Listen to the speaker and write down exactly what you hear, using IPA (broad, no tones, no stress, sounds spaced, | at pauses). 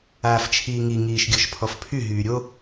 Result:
aː f t͡ʃʰ iː ŋ i ŋ iː ʃ ɡʲ ɔ ʃ pʰ ɔ f pʰ y ɦ yː ɾʲ o